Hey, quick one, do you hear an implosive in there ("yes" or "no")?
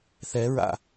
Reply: no